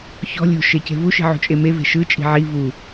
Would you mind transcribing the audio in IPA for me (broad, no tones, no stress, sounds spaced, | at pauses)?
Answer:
ç ɔ̤ lʲ o̤ ʃ e c e̤ v u ʃ i̤ ʕ ṳ t͡ʃʼ e m e v e̤ ʃ ɯ t͡ʃʼ i̤ ʕ i v u